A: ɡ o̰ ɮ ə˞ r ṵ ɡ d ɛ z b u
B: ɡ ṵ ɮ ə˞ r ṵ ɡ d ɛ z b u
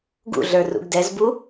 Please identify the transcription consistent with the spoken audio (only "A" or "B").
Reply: B